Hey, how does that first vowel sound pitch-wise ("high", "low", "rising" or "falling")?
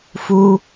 high